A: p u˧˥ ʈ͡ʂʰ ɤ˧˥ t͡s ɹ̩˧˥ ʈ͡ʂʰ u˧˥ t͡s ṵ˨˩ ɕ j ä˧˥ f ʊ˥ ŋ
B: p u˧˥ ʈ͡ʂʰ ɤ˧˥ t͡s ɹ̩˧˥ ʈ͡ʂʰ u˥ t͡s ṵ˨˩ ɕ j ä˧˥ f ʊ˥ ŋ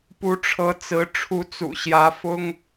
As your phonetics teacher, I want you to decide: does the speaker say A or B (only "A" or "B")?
A